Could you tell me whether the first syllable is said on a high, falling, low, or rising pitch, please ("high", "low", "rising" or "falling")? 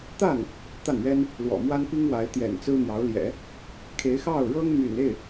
falling